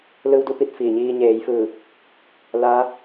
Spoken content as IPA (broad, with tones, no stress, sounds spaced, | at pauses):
l ɯː˧ w d u˥˨ p i˥˨ t̚ f iː˧˩ ɲ iː˧ ɲ eː˩˧ j f ɯː˧˩ | l aː˧˥